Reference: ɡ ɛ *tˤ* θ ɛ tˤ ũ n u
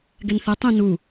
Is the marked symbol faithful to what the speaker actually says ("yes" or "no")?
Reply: no